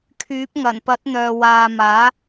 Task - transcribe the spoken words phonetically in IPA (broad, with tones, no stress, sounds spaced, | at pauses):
kʰ yː˨˥ p̚ ŋ ɐ˨˩ n p ɐ˨˥ t̚ n̪ œː˨ w aː˨ m aː˨˥